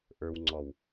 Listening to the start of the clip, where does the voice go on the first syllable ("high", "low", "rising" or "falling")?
low